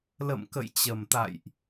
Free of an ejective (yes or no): yes